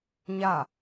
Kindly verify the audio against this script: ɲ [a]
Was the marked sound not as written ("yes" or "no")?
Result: no